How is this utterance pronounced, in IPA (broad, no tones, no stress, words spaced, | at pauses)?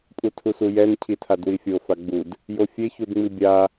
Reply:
pʼutʰusujɛn cʰitʰadwifʲo faɡ͡bud | jofʲe çudŋ͡mibʲa